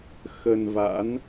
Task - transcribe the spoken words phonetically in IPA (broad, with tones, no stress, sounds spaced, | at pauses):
x ə˧ n v a̰˧˥ n